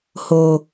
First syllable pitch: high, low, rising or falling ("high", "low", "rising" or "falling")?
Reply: low